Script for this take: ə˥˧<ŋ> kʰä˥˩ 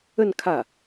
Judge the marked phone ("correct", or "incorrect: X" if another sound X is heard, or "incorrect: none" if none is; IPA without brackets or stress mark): incorrect: n